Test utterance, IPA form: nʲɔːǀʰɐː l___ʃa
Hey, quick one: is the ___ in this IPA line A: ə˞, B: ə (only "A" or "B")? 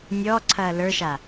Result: A